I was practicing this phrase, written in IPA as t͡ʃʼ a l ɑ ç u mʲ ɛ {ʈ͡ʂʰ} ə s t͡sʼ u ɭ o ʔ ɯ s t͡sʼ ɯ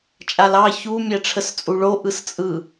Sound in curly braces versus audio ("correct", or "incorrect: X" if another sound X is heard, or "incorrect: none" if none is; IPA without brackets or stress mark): correct